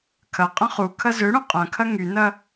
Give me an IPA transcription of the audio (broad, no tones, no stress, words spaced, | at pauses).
kʰɐqʼɐ̃ χukʰɐ zøɽũ qʼɐ̃kʰɐ ŋynɐ